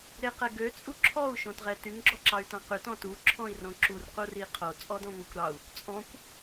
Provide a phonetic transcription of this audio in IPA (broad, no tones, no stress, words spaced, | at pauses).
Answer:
ɾeqɛɡø t͡sʼuǁʰɔu̯ ʃõtʁɛtyŋ ɡ͡ǁɔǁɑy̯tɑ̃qʉt ɔ̃tu ǁʰɔ̃i̯rõǁur quriqʰo t͡sʼɔdɔ̃ŋʷekʷɾɑu̯ | t͡sʼɔ̃kʷ